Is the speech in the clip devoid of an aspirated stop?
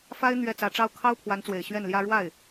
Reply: no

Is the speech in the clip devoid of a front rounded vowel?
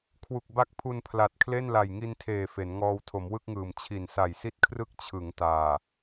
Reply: yes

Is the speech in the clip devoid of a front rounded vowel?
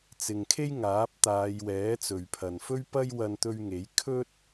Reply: yes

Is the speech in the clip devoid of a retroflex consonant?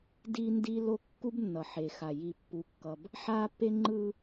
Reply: yes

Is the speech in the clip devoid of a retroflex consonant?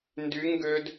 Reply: yes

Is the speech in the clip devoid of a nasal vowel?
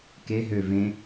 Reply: no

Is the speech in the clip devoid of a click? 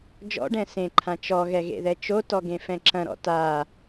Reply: no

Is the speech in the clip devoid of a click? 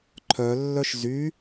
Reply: no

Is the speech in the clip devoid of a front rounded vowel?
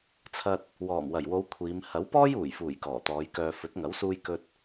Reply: no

